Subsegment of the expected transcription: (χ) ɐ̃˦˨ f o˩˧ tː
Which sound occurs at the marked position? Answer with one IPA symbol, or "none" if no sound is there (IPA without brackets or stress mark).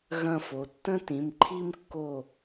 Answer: ɣ